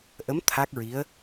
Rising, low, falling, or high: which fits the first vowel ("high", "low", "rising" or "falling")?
rising